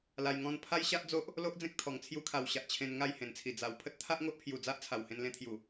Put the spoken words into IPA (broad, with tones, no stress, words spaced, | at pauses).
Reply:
la˧jŋɔ̃˥˧n pʰa˦jɕa˦ʔd͡zo˦ʔ | lo˦ʔd͡zẽ˦k̚ t̪ʰɔ˨˩ŋ t͡sʰju˧kʰa˨˩wɕa˨ʔ t͡ɕʰẽ˧nŋa˥˧jhẽ˨˩nt͡sʰi˨˩ d͡za˨˩wpʰə˦t̚ t̪ʰa˦ʔŋo˦ʔpʰju˨˩ d͡za˦ʔt͡sʰa˨˩w hẽ˧nlẽ˧t̪ʰju˨˩